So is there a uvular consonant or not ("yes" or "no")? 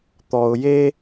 no